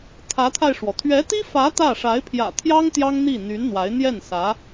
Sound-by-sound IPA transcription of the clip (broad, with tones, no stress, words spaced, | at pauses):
t̪ʰä˧˥t̪ʰa˧ɪ̯ʂwɔ˩ t̪ʰɥɛ˧˥t̪i˥fä˧˥ t̪ä˥˩ ʂa˧˥ɪ̯pʰjä̰˨˩t̪ʰjɑ˥ŋ t̪jɑ˥ŋn̪i˥˩ n̪y˧˥nn̪wa˧˥ɪ̯ n̪jɛ˥˩n sä˧˥